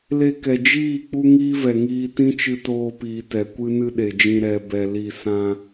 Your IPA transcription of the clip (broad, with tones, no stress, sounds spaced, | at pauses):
l e˧ k ɛ˨ d͡ʒ iː˦˨ k͡p u˦ ŋ iː˦ v ɛ˨ ŋ iː˧ t ĩ˦ t͡ʃ ɨ˧ t oː˧ p iː˨ t ɛ˨ kʷ ɨ˦ n ɨ˦ ɗ e˨ d͡ʒ ĩ˧ ɾ ɛ˧ b ɛ˧ l i˦˨ s ã˧